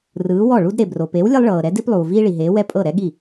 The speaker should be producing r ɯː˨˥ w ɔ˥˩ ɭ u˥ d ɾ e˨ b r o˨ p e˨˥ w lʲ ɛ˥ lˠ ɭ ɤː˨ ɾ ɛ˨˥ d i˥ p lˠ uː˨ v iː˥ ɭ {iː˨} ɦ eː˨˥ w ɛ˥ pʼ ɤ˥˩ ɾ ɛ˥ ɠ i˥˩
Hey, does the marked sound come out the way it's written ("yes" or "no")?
no